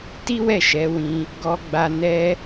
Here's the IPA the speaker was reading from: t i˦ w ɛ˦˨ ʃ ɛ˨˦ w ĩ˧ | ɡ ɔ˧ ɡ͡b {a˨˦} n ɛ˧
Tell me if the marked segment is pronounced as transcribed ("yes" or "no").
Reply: no